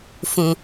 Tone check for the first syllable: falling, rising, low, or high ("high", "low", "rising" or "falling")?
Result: low